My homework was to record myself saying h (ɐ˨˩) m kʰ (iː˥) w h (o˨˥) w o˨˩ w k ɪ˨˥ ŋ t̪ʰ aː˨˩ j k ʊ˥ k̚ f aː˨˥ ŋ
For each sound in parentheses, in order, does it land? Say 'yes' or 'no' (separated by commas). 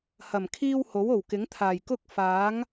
yes, yes, yes